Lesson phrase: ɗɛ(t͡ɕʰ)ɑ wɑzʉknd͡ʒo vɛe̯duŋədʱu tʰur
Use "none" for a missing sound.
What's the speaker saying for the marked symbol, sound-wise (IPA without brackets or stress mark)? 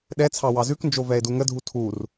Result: t͡sʰ